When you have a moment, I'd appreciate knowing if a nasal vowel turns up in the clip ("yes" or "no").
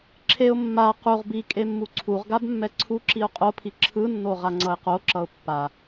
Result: no